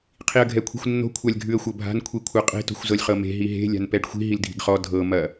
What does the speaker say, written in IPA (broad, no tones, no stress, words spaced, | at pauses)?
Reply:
qʰiə̯ɡʱɛkʷʰi̤xʷnːo̤ kʷʰalʲɡʱʉə̯xʷɤbʱa̤n kʷʰikʷʰɤqʼe̤ to̤xʷzɤlʲχɤme̤ ɦiɦe̤ lʲa̤npɛɖxʷi̤ ɦildʱi̤ɡχɔ dʱɤ mɐ